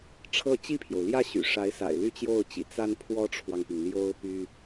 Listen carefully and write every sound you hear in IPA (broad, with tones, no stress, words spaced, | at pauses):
ʈ͡ʂʰɤ˥˧ t͡ɕi˥˩pʰjo˩ʊ̯ ljä˥˩ɕy̰˨˩ʂa˧˥ɪ̯sa̰˨˩ɪ̯ ly˥˧t͡ɕjo˥˩ʊ̯t͡ɕḭ˨˩ t͡sa˥npʰwɔ˥ʈ͡ʂʰwɑ˨ŋpi˩ŋ ljo˥ʊ̯py˥